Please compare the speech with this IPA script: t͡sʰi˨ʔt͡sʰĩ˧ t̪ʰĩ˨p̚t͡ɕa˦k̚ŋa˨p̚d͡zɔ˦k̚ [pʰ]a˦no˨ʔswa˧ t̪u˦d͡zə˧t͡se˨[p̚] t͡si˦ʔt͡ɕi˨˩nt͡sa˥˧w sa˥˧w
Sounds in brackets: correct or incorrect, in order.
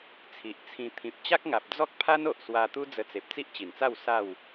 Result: correct, correct

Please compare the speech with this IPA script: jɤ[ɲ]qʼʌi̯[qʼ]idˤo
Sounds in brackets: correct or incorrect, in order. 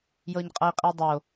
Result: correct, correct

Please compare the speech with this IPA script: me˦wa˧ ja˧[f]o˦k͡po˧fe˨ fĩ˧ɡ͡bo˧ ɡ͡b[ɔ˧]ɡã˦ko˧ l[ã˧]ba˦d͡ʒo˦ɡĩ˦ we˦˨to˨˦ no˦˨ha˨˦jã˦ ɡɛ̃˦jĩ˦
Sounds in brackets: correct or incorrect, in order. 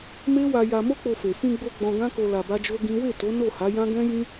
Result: incorrect, incorrect, incorrect

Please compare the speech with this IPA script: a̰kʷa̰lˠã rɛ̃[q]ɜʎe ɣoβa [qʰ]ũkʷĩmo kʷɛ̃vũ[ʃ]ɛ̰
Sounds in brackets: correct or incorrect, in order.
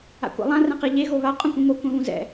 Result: correct, incorrect, incorrect

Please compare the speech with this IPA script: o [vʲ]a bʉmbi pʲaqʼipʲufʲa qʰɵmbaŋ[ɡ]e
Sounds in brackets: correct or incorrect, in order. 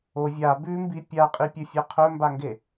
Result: correct, correct

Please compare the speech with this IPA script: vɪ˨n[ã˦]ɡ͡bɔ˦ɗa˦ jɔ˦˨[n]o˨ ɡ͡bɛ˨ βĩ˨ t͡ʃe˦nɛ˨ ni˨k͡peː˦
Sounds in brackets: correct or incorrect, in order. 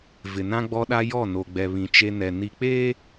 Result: correct, correct

